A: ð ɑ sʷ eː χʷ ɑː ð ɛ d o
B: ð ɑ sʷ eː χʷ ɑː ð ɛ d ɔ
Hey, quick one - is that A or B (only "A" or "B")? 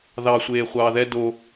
A